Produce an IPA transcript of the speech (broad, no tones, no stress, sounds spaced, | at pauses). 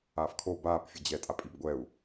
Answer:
aː f kʰ o b aː p fʲ ə d͡ʑ ɛ tʼ a pʼ i b ɡʷ ɛ u̯